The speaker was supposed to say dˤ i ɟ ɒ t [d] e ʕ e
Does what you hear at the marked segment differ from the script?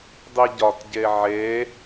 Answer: yes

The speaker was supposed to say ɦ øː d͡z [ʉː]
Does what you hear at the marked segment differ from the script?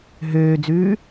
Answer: no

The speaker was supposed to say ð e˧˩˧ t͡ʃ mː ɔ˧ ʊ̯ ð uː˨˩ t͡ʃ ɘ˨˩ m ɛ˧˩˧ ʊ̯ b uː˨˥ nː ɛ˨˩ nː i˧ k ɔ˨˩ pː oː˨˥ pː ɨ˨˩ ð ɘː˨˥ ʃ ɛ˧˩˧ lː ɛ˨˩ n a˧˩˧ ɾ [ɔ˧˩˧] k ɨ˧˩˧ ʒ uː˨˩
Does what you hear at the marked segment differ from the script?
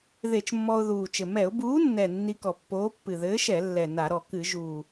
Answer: yes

